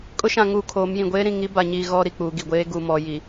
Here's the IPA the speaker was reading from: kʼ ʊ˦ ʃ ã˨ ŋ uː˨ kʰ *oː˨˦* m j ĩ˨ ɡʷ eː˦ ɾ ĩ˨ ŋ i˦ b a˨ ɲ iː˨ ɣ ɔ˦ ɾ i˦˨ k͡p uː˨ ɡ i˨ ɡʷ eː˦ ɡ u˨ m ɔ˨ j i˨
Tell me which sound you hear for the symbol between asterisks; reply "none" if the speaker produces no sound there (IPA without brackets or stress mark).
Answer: oː˨˦